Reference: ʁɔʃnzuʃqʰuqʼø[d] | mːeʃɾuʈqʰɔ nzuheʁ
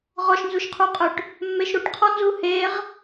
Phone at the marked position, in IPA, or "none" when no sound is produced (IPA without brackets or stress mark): ʈ